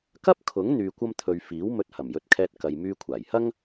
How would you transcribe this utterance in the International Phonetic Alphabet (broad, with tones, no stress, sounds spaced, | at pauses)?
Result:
k ɐ˥ p̚ kʰ ʊ˨˥ ŋ n̪ yː˧ kʷ ɐ˥ m t̪ʰ ɵ˧ ɥ f iː˨˥ w m ɵ˧ t̚ h ɐ˨˩ m j ɵ˨˥ t̚ kʰ ɛː˧ t̚ k ɐ˨ j m yː˧ kʷʰ aː˨˩ j h ɐ˥ ŋ